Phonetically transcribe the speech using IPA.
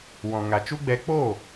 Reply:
wɔ̃˨ŋa˨t͡ʃu˦ɡ͡bɛ˧ k͡po˦˨

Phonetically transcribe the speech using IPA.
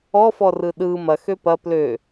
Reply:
ɔfɔrɯ ɗɯ mɐxø pɐ plø

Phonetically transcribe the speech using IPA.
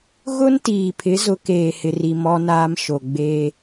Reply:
ɣʊ˦n tiː˨pʰɪ˨˦ zʊ˨˦keː˨hɪ˨ri˨ mɔ˦naː˦mʃo˨ ɡ͡beː˦

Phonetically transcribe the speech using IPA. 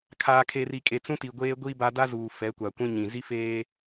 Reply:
kʰaː˨kʰe˨ ri˨kʼe˨ t͡sũ˦ti˨ ɡʷeː˦ɡʷiː˦ba˦ da˦ zuː˨ fɛ˨˦kʷa˨kʷĩ˦ɲĩ˨ zi˦feː˦

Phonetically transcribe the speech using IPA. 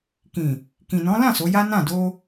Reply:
kĩ˨ | kĩ˨nɔ̃˨˦ lã˦˨ so˨˦ja˦ nã˦˨do˧

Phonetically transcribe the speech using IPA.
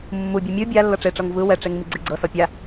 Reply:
mːubʲɯ mʲɯ bʲa lːɤʈ͡ʂeʈ͡ʂɤŋ vɯ wɛʈ͡ʂeŋ miɡ͡ǀeɡ͡ǀɤsɔ pʲa

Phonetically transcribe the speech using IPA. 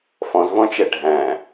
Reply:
fɔ̃zvɔ̃t͡ʃɛ ɖʱæ̃

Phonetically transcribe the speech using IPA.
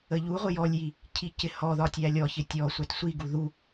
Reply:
əʎuʁʷɪ jɔlʲji | cʰicɪhɔðɒ tʲælʲɔçɪ tʲɔ sʷætsʷiɡu ðu

